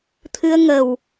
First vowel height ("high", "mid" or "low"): high